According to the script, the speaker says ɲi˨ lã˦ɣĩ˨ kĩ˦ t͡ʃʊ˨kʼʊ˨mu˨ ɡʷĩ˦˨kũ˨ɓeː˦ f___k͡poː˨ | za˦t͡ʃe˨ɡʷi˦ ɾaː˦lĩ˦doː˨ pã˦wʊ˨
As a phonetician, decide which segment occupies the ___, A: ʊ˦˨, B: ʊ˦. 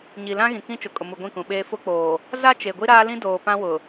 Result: B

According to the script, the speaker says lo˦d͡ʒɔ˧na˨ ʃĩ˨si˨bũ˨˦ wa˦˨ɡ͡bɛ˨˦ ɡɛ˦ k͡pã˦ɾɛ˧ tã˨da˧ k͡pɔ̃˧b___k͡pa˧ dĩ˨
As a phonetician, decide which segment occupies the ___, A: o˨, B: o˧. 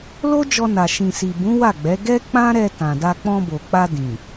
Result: A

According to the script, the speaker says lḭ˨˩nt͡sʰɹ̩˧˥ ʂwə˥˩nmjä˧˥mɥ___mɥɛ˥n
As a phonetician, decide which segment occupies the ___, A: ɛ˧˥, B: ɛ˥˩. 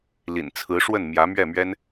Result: B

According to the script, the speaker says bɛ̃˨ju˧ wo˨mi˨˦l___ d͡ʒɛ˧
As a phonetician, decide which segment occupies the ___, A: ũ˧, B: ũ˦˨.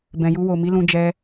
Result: A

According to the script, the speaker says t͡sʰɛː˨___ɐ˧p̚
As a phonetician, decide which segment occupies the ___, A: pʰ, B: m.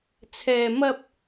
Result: B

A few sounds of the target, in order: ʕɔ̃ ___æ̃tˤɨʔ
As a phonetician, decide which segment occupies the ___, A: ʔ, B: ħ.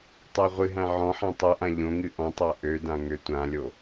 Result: B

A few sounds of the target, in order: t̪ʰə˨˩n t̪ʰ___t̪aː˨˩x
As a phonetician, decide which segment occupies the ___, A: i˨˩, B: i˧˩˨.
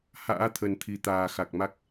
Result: A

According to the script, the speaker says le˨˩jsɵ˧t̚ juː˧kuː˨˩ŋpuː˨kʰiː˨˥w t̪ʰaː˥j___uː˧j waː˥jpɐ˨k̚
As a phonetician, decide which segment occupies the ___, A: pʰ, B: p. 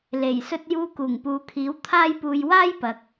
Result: B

